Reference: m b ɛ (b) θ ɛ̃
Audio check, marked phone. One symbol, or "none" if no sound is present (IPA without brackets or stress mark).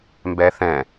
none